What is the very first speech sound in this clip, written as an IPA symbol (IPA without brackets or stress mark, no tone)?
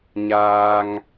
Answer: ɲ